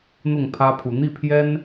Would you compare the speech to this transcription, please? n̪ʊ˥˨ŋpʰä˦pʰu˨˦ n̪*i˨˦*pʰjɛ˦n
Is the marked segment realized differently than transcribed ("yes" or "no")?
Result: yes